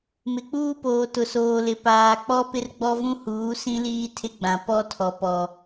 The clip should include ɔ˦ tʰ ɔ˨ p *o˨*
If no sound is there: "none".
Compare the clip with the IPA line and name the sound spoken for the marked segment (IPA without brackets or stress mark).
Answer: ɔ˨